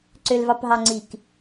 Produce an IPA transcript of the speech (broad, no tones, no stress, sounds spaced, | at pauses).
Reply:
ǀ ø l v ɑ p ɦ ɑ ŋ͡ǀ i k